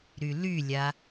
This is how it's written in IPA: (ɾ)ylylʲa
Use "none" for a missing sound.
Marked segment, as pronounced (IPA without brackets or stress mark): ɾ